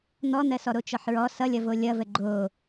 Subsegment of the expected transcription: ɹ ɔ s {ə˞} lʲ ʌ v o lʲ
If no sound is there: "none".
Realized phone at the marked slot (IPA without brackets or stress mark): ʌ